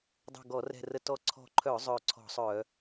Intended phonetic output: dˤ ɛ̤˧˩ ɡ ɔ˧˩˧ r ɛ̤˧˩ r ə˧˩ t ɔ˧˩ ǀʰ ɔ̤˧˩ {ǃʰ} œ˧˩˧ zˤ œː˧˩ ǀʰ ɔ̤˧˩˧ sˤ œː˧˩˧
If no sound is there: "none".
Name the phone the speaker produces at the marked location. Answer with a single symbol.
ǃʰ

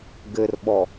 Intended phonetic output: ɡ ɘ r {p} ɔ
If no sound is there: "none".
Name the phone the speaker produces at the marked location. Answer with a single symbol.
ɓ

